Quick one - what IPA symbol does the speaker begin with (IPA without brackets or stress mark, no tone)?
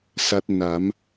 s